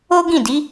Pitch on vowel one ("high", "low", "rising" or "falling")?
high